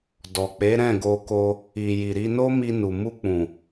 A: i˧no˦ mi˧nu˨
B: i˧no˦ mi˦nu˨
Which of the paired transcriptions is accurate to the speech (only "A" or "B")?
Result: A